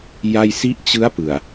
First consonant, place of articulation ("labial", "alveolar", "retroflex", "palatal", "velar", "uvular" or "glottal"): palatal